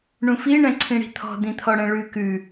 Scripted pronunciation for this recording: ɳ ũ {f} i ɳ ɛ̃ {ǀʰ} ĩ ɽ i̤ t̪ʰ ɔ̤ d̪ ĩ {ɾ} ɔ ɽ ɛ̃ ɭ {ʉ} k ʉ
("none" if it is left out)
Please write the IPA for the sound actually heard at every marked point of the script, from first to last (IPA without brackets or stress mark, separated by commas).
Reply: f, ǀʰ, t̪ʰ, ʉ